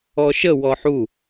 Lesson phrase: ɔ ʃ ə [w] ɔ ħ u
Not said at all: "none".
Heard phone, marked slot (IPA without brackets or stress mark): w